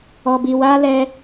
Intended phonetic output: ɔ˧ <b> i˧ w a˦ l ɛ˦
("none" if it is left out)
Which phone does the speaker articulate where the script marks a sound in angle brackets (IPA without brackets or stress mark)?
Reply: b